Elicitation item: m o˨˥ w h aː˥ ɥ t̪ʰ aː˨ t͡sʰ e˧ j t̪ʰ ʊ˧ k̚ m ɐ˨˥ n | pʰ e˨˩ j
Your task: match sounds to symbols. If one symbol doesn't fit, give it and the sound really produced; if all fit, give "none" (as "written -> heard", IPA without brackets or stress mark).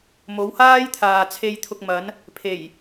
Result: ɥ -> j